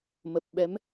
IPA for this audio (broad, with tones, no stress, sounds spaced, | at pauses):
m ə˨˩ p̚ ɓ ɛ˨˦ m